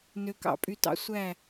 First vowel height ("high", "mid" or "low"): mid